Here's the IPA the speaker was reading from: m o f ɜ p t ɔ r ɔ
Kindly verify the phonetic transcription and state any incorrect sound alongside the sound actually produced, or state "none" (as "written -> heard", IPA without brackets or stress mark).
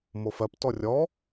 r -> rʲ